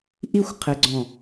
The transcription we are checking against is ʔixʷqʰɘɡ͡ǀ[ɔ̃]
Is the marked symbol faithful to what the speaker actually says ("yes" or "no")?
yes